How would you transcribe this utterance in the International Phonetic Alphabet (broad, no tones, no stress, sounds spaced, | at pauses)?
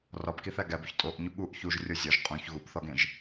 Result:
r ɒ b k i θ æ ɡ æ b u ç tʼ o ʔ ɲ u ɠ u ʔ ç u ʒ rʲ o zʲ ɒ ʒ qʼ ũ ç ɣ u b θ ɒ ɡ ẽ ʒ